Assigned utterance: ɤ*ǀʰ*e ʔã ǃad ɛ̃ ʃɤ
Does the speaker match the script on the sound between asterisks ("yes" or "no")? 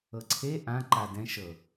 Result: yes